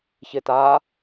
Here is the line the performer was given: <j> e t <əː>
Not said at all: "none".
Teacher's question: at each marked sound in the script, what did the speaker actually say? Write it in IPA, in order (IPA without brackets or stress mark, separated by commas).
ç, aː